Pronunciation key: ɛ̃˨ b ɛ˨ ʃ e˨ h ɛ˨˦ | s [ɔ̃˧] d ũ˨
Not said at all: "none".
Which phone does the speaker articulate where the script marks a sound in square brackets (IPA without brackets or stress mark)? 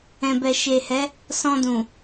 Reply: ɔ̃˧